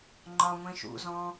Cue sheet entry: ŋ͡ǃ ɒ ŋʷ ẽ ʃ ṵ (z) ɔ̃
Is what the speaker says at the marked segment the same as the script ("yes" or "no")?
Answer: yes